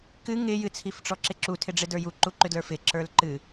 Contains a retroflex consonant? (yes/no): yes